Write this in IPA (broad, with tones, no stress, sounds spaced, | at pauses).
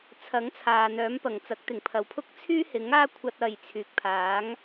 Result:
t͡sʰ ɐ˨˥ ŋ t͡sʰ aː˨ n̪ œː˨˥ m p ɐ˨˩ ŋ t͡s ɐ˨˥ k̚ t̪ ɪ˨˩ ŋ pʰ ɐ˨ w pʰ ʊ˥ k̚ t͡sʰ yː˥ h ɪ˨˥ ŋ aː˥ kʷʰ ɐ˧ t̚ ɐ˨ j t͡sʰ yː˨ k̚ pʰ aː˨˥ ŋ